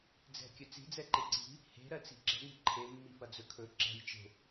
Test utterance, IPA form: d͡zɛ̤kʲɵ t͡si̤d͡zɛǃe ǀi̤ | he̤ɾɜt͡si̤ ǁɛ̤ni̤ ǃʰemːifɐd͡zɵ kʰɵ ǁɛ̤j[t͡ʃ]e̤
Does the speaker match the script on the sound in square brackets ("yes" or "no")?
yes